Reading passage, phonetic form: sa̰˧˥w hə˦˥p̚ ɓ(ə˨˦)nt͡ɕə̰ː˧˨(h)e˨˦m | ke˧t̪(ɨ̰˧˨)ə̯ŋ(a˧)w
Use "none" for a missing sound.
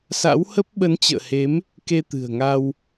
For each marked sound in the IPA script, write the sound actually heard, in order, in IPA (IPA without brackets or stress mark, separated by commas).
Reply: ə˨˦, h, ɨ̤˨˩, a˧